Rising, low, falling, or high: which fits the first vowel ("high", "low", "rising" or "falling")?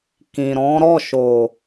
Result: low